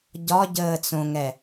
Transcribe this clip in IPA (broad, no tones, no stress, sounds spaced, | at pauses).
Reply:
ɟ ɒ ɟ əː t͡s õ ŋ ɛ